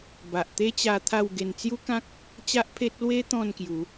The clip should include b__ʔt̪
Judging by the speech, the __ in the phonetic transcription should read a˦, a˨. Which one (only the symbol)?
a˨